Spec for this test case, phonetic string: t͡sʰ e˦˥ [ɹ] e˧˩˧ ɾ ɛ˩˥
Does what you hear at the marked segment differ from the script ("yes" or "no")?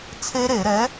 yes